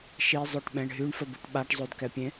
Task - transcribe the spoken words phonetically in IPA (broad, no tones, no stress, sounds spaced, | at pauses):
ʃ i zˤ ø ʈ ɓ ɛ̃ ɳ ɦ y ɳ f ə b u ʈ ɓ a ʈ zˤ o d k ɛ pʲ ẽ